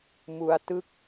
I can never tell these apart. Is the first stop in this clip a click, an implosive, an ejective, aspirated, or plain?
plain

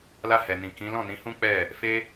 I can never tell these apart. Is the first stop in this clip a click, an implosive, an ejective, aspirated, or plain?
plain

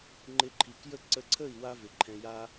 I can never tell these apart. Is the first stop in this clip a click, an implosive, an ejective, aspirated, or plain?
click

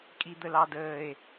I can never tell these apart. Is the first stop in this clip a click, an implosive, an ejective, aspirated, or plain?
ejective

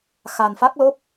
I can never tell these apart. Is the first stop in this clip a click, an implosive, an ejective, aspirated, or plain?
plain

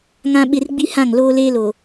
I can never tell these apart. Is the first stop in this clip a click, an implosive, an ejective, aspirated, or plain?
implosive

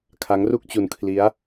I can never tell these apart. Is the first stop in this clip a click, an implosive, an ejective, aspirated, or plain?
aspirated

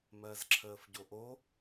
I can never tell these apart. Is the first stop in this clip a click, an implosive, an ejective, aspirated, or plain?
click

